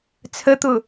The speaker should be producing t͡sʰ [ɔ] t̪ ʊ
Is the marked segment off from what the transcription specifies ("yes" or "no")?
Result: yes